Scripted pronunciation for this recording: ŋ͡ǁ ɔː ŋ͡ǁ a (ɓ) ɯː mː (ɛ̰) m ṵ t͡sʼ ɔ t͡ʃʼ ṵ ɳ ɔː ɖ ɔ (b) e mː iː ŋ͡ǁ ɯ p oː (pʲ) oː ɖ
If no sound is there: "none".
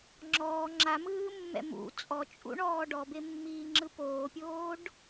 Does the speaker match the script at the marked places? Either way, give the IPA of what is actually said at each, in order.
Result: m, ɛ̰, b, pʲ

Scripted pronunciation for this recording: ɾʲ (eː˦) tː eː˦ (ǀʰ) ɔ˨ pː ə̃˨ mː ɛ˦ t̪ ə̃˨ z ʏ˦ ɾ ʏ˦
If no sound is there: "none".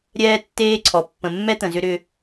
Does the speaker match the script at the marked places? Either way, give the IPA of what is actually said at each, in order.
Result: ɛː˦, ǀʰ

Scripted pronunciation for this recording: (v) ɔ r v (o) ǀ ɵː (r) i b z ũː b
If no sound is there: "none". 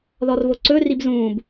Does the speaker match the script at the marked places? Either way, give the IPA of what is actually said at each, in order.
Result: ð, o, r

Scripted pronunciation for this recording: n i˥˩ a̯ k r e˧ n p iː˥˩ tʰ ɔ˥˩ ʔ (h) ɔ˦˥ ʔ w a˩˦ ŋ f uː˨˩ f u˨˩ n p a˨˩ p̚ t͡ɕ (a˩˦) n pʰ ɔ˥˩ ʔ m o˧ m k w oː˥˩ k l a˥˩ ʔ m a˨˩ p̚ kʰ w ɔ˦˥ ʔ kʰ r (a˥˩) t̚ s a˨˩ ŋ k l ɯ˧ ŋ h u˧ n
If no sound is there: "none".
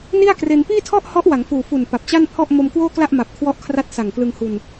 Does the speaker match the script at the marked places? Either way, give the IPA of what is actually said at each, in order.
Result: h, a˥˩, a˦˥

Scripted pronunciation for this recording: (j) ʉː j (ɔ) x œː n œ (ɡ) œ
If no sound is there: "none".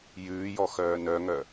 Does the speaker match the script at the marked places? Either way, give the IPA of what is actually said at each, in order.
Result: j, ɔ, ŋ

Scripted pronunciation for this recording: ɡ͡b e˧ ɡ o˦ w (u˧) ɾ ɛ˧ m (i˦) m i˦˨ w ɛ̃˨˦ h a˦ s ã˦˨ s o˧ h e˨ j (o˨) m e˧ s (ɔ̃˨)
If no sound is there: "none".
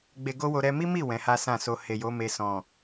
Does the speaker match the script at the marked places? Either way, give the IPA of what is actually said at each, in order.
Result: o˧, i˦, o˨˦, ɔ̃˨

